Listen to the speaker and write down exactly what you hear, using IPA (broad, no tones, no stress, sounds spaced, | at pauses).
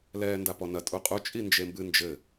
l ɛː n d a p ɔ n ɐ tʼ u qʼ u t͡ʃʼ i n d͡ʒ e m b ɨ n d͡ʒ ɘ